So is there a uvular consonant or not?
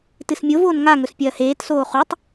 yes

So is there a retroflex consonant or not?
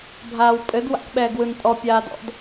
no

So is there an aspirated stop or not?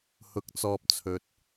yes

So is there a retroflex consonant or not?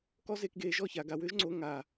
no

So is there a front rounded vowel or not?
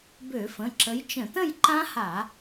yes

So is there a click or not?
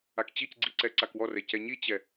yes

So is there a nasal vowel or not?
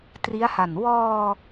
no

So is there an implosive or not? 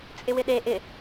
yes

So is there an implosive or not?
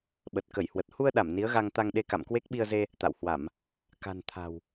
yes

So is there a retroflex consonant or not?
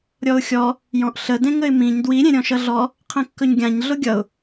no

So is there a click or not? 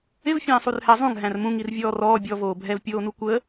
no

